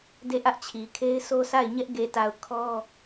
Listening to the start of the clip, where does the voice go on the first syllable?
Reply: falling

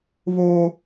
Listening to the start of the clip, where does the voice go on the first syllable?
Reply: high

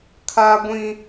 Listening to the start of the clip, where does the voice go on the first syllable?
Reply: high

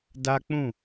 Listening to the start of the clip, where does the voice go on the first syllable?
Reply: high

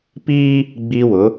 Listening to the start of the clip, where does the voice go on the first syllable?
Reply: high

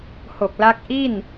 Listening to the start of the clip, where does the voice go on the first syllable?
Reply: low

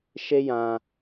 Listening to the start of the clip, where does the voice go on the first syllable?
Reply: high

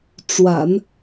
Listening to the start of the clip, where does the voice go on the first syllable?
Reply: low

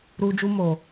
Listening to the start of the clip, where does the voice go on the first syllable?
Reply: high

